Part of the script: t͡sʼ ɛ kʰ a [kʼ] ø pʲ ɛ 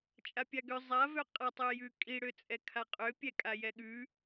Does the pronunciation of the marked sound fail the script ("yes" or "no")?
yes